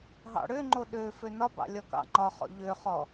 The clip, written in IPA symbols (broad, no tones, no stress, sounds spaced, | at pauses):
ɦ ɑ̰ ɽ ø ŋ͡ǃ o ɗ ø f ø n ɒ b ɑ̰ lʲ ɒ k ɑ̰ ŋ͡ǃ ɒ χ ɔ̰ ʎ ø χ ɔ